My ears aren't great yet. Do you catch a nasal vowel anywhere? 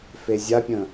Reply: yes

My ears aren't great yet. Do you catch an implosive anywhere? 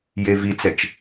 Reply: no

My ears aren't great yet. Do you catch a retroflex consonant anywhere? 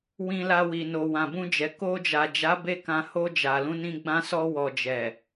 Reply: no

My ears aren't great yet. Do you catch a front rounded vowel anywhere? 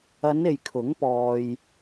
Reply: no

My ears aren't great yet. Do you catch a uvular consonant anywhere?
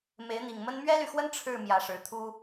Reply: no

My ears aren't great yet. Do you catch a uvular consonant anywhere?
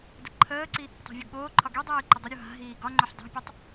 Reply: no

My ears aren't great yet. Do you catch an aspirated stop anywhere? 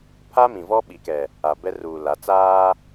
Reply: yes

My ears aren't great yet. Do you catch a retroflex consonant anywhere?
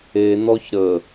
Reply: no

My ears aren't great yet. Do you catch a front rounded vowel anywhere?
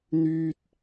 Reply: yes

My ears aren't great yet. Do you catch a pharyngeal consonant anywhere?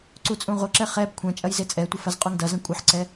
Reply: yes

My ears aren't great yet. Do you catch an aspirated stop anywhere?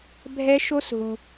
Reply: no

